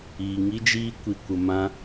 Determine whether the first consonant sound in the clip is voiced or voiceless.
voiced